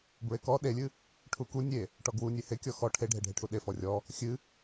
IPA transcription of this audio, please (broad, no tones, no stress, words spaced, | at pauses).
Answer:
bɹekɔ ɗelʲɨ | ʈʰuku nʲe | ʈɔɡwu nʲehe kʲɔxɔ ʈʰeɖʱeɖʱeʈʰu ɗe fɔrʲɔ | xʲɨ